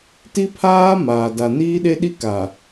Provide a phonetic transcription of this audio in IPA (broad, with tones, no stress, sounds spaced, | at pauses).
t i˦ pʰ aː˦ m aː˨ d a˨ n iː˦ ɗ e˦ ɗ i˦ k a˨